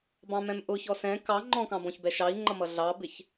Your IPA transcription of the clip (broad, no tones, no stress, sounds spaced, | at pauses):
b ɑ̃ m ɛ̃ m ʔ ʊ ç ɔ s ɛ̃ k ɑ ŋ͡ǃ ɔ̃ k ɑ̃ b ɔ̃ ç b ɛ ʃ ɑ i̯ ŋ͡ǃ ʌ m ʌ ɮ ɑ b ɪ ç